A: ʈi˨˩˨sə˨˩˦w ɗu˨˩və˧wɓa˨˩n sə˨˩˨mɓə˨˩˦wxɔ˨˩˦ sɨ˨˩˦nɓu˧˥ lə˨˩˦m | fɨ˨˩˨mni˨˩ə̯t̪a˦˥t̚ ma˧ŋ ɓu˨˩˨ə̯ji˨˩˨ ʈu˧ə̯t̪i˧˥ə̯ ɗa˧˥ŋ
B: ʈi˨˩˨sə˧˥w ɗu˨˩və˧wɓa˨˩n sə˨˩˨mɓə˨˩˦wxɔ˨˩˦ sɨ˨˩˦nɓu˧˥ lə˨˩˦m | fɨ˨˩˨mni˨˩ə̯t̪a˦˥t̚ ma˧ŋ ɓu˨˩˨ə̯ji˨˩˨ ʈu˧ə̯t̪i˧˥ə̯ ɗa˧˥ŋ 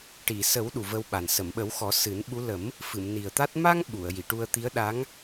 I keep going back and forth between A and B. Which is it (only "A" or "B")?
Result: A